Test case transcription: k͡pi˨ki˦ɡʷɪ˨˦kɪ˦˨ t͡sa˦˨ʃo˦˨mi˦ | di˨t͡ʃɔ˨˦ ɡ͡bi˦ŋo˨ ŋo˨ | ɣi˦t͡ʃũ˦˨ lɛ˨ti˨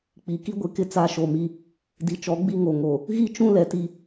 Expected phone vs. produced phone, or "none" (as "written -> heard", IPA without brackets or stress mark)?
none